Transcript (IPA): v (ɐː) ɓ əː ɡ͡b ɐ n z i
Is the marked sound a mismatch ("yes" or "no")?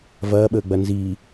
no